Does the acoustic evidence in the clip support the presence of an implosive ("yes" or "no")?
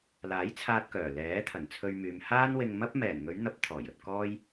no